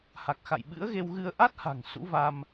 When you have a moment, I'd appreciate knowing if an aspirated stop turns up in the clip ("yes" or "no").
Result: no